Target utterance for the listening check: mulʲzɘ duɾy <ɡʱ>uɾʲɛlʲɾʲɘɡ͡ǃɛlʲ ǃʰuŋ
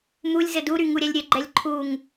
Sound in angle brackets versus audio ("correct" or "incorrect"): incorrect